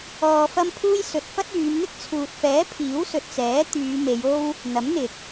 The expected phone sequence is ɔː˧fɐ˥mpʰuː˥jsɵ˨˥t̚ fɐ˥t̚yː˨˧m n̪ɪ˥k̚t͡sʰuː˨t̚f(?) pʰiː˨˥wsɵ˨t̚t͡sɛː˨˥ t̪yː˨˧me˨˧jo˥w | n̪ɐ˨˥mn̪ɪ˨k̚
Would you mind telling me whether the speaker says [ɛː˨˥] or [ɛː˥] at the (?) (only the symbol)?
ɛː˨˥